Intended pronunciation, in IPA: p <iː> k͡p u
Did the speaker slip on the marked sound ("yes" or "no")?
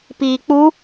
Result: no